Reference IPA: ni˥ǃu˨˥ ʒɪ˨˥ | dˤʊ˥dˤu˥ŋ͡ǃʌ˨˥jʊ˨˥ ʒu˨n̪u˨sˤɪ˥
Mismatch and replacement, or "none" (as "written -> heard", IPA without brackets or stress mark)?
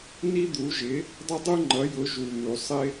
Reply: ǃ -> d̪